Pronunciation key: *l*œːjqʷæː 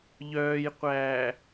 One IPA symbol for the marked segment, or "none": ʎ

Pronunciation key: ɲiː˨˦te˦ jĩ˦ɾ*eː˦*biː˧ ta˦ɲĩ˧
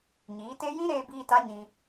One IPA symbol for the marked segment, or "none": eː˧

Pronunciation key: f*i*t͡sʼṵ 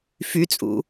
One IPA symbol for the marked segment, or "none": y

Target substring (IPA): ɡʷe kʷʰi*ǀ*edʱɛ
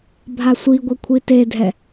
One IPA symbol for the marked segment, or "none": t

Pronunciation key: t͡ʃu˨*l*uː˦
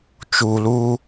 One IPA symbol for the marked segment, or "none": l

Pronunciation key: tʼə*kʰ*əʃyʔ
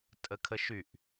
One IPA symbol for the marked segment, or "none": kʰ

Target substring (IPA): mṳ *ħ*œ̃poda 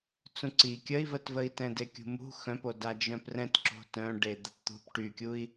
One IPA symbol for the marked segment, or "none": x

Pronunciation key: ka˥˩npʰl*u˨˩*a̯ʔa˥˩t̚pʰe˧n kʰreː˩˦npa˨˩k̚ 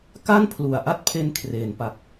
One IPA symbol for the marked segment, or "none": u˨˩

